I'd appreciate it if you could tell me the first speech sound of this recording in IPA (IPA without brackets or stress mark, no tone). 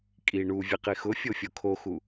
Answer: kʼ